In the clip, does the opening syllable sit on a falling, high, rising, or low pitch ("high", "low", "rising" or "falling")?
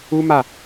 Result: high